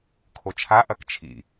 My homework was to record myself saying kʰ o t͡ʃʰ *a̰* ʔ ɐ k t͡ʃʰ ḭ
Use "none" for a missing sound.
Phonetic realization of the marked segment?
a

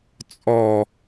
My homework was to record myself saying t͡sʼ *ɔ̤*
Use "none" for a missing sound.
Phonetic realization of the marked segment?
ɔ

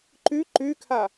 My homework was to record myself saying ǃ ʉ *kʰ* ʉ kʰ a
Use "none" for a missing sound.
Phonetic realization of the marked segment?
ǃ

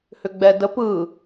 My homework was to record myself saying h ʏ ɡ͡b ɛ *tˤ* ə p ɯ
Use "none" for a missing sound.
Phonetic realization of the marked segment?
d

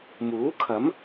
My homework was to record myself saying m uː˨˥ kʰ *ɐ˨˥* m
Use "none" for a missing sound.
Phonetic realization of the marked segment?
ɐ˨˥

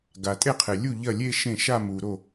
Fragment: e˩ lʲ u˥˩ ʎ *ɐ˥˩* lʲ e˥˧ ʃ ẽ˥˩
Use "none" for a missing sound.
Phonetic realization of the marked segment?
ɐ˥˩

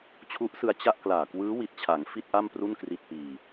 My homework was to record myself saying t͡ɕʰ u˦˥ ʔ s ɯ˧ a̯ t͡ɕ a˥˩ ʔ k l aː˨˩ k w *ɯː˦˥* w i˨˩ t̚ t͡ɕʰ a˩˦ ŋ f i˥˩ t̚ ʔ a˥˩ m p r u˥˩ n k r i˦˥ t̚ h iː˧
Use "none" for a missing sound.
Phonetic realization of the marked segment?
ɯː˦˥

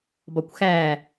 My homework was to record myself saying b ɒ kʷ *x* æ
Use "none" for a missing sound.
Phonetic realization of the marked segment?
x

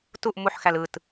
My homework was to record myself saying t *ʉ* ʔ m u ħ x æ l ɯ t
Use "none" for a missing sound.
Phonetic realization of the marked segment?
u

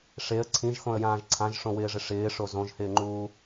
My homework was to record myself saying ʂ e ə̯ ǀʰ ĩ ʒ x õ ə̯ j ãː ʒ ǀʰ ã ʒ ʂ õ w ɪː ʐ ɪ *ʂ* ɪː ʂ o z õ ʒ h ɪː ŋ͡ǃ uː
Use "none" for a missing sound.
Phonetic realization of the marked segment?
ʂ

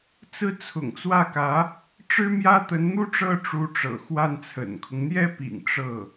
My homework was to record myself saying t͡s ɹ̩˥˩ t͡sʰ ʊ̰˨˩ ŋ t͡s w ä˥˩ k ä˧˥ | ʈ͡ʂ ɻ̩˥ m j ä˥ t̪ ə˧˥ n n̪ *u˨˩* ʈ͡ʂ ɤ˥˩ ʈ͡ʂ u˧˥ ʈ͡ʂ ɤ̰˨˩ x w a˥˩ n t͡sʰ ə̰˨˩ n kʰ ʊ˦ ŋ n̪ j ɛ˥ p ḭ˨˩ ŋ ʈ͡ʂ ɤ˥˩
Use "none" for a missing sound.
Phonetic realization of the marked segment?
u˥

